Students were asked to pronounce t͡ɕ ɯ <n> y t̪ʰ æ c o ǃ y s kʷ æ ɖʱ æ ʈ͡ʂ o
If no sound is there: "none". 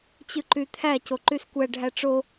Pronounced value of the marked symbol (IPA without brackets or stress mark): ǃ